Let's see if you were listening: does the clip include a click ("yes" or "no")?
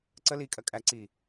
yes